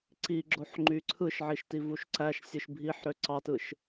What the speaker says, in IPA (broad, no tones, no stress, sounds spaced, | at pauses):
ǀ i ɡ͡ǁ o ħ ŋ͡ǃ y ǀʰ ɯ ʃ ʕ i ʃ t i v u ʃ ǀ æ ʃ sʲ ɯ ʃ bʱ i ħ ɾ ø ǀ ɑ t ɯ ʃ